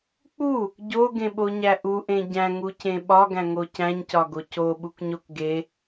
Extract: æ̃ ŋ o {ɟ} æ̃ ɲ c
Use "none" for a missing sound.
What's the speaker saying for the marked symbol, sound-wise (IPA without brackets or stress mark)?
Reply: c